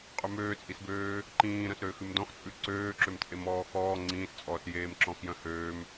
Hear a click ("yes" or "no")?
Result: yes